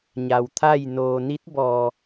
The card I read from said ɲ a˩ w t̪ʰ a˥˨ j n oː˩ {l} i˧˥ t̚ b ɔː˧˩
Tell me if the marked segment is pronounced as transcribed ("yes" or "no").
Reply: no